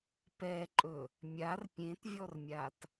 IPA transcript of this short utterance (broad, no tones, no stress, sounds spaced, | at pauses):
p ɛ ǃʼ ɵ | mʲ a r pʲ ẽ t vʲ ɔ r mʲ a t